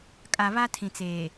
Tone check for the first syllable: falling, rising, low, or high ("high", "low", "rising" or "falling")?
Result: low